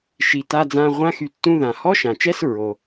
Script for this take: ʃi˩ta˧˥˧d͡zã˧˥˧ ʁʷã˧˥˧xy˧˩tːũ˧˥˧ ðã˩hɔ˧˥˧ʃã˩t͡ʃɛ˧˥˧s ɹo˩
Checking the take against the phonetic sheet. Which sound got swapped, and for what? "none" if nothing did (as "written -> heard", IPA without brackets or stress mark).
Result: none